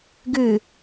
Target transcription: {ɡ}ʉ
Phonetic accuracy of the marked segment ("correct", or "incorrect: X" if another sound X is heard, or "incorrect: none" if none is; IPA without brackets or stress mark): correct